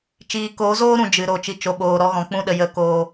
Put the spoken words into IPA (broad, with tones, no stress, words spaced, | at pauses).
t͡ʃiː˨koː˨˦zoː˦ɾũ˨ d͡ʒɨ˨ɾo˨˦ t͡ʃi˨t͡ʃo˨ɓoː˨ ɾɔ˦ɣɔ̃˧k͡pũ˦ɗə˧ jə˧koː˧